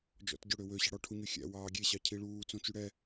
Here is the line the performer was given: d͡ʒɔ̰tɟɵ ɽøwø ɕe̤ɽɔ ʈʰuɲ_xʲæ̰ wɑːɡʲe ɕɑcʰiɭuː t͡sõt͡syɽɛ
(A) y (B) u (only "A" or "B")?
A